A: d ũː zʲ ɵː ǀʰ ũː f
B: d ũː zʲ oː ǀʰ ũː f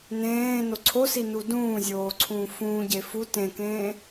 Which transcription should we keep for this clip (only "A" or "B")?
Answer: B